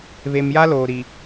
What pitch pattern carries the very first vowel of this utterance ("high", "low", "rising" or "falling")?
low